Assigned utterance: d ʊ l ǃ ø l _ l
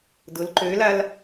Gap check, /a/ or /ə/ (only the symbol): a